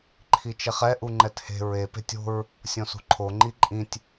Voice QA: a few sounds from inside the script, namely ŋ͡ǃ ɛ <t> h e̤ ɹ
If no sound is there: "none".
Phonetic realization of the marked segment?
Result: t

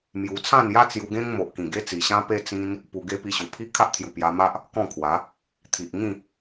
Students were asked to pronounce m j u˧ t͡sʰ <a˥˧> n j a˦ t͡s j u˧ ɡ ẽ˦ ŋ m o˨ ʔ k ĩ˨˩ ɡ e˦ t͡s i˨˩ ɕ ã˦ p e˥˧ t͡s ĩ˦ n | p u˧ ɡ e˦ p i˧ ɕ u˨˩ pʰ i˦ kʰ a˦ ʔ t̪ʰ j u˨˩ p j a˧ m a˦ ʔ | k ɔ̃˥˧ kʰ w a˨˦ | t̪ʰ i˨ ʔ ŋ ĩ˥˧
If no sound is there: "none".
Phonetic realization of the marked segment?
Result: ã˥˧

